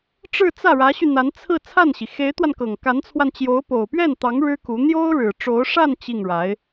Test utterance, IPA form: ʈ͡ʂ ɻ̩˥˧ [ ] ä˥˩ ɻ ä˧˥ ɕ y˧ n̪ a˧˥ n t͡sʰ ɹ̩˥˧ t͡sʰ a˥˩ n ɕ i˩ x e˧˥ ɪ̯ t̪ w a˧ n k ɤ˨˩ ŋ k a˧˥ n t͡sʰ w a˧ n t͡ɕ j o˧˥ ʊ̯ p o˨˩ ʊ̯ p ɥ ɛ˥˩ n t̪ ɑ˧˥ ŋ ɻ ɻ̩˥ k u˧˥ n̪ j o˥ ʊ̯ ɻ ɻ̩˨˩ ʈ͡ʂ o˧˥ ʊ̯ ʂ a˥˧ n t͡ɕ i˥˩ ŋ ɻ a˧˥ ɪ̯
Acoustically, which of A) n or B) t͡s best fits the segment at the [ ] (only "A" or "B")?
B